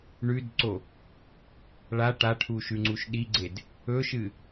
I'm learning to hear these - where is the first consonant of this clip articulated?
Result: retroflex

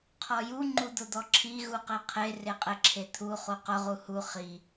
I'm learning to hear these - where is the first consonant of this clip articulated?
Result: uvula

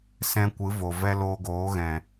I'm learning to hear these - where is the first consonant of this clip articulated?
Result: tongue tip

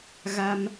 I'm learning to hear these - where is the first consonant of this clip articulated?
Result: velum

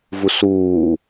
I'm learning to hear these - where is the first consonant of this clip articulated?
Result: lips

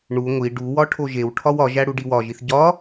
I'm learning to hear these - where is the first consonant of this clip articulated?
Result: retroflex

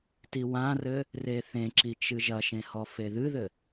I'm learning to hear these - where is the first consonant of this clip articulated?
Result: tongue tip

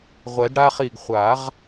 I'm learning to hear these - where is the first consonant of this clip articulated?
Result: uvula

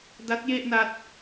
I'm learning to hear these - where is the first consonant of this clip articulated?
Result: tongue tip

